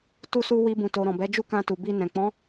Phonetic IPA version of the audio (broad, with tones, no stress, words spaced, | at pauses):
tu˦su˦ wi˧bũ˨to˨ ɾɔ̃˨bɛ˨˦d͡ʒu˦ kã˧tu˨bi˧nɛ̃˨ k͡pɔ̃˨˦